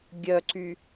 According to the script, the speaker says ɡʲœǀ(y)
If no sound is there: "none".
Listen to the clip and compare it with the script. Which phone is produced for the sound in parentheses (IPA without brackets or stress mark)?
y